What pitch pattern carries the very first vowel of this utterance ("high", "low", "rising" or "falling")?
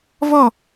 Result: falling